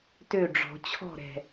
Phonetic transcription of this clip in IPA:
t ø˥˨ ɖ͡ʐ ɔ̤˨˩˦ t͡ɕʰ ɔ̤˥˨ ɾ ɛ̤˨˩

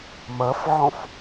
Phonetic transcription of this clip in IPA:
m ɐ f ʕ ɔ̃ f

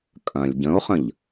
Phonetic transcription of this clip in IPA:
kʼ ɐ̃ lʲ ɟ ə̃ o̯ χ ə̃ ʎ

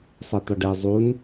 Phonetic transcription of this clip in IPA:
sˤ ɛ t̪ ɒ ɖ ɛ zˤ u n

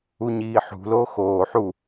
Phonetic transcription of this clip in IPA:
u ɲ iː ħ ṳ l oː x oː ħ u

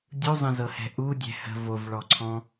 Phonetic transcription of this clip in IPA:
dʲ u zˤ ə̃ z ɤ h ɛ̤ ʔ u dʲ ɛ̤ h ə̤ v o v ɭ ɔ ǀʰ ɔ̃

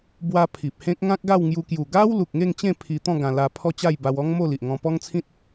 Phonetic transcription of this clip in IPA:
b w a˧ pʰ i˨ p̚ h ẽ˦ k̚ ŋ ã˦ k̚ ɡ a˥˧ w ŋ j u˧ k j u˨˩ ɡ a˦ w l u˨ k̚ ŋ e˥˧ ŋ t͡ɕ ẽ˥˧ pʰ i˧ t̪ ɔ̃˥˧ ɡ ã˧ l a˧ pʰ ɔ˥˧ t͡ɕ a˥˧ j b a˧ w ɔ˦ ŋ m o˥˧ l i˨ ʔ ŋ ɔ̃˧ p ɔ˦ ŋ t͡sʰ ĩ˦ t̚

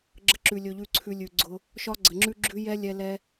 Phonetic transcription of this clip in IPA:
ɡ͡ǁ ə˧ ǁ ʉ˨ lʲ ɵ˧ ʎ ʉ˦˨ ǀʰ ʉ˧ lʲ ʉ˨ ɡ͡ǀ ʊ˧ | ʃ ɒ˦ ɡ͡ǀ ə˨ ŋ͡ǁ ʉ˦ ɡ͡ǁ ʉ˦ j ɛ˦ lʲ ɛ˧ l ɛ˦

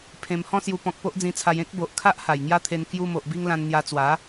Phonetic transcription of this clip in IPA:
pʰ ẽ˧ m h ɔ̃˦ s j u˧ p ɔ̃˨ k̚ p o˦ ʔ d͡z ĩ˧ t͡sʰ a˧ j ẽ˦ k̚ b o˨ ʔ kʰ a˦ ʔ h a˨˩ j ŋ j a˦ t̪ʰ e˧ n k j u˧ m o˨ ʔ b i˧ ŋ l ã˧ n n̪ j a˧ t͡s w a˨˦

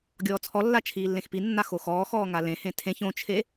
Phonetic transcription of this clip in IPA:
ɡʲ ɔː t͡sʰ ɔ lː a t͡ʃʰ iː lː ẽ x p i nː a x o x ɔː x ɔː ŋ a l ẽ h ẽ tʰ ẽ ç õ t͡ʃʰ e

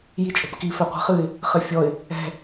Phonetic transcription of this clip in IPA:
j i t͡ʃʼ o̤ p k i f ɛ qʷ ɛ̤ χ ɨ ɪ̯ | χ ɘ fʲ ɔ ɪ̯ | ɛ̤

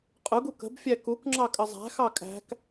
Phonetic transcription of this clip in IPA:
qʼ ʊ ɡ u k ə̤ b fʲ æ k u k ŋ͡ǁ ɑ kʼ ə zˤ æ̤ x ɑ kʼ æ̤ k

